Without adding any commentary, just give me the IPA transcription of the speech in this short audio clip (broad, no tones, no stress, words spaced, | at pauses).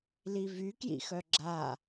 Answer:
livy kjḭxœɡ͡ǁa